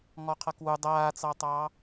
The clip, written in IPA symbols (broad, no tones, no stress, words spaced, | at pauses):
ŋɔqʰʌkwu dˤaːt͡sɑtˤɑː